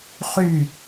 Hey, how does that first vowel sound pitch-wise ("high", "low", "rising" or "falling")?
falling